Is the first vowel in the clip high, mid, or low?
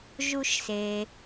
high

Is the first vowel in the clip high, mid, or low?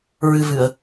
high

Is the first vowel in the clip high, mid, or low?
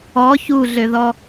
mid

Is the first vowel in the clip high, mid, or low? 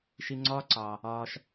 high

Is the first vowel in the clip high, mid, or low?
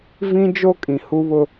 high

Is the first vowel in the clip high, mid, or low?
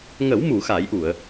mid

